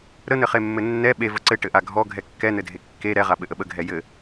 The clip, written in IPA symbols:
ɾ ə n̪ ɘ χ e mː ɘ nː ɛ ɓ e v ə ǀ ɘ ʈ ɘ ʔ a ɡʱ ɔ ɡʱ ɛ kː ɛ n̪ ɘ dʱ e kː e ɾ ɛ ʁ a ɓ ɘ ʔ ə ɓ ə ɡʱ ɛ j ɘ

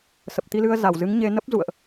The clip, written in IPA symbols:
s ə˨˩ p̚ t̪ i˧ l ɨ˧ ə̯ z a˧˩ w z ɨ˨˦ ŋ ɲ e˧ n ə˦˥ p̚ z ṵ˧˨ ə̯ ʔ

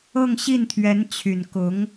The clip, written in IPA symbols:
ɤ˥˧ ŋ ɕ i˥˩ n t̪ʰ ɥ ɛ˧˥ n t͡ɕʰ y˨˩ n k ʊ˧˥ ŋ

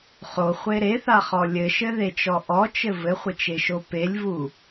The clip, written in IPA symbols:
χ o χʷ e ɾ e θ a χ ɔ lʲ ɘ ʃ ɘ ð e t͡ʃ ɔ ʔ ɔ t͡ʃ ɘ v ɘ χʷ ɘ t͡ʃ e ʃ o p e lʲ v u

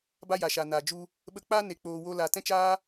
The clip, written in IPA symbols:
b a˦ j a˨ ʃ a˨ n aː˨ d͡ʒ u˧ | ɓ ə˧ k͡p aː˦ n e˧ k͡p oː˧ w o˦ l a˧ t ɛ̃˦ t͡ʃ aː˦

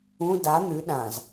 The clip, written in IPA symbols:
ũ d a n̪ ʉ ɗ ã z

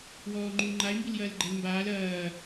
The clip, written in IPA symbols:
w ɔː ŋ͡ǃ u l ŋ͡ǃ a ɪ̯ m b i l j ɐː l ɡ͡ǃ ɛ l m b aː l ɐː

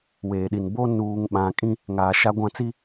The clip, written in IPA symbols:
w eː˨ ɗ i˨ n b o˦ n uː˨ ŋ ɓ ã˨ kʼ ĩ˦ | ŋ aː˨ ʃ a˦ ɡʷ ã˦ t͡s i˦

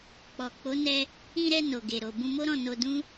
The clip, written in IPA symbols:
k͡p ɔ˨ k͡p o˨˦ n ɛ˧ | ĩ˧ ɾ ɛ˧ n o˨ ɡ e˨ ɾ o˨ b ũ˧ m o˦ ɾ ɔ̃˦˨ n o˧ d ũ˦

